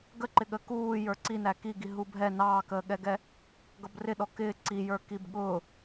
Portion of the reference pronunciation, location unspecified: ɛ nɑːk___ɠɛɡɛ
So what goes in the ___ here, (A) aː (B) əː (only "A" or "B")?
B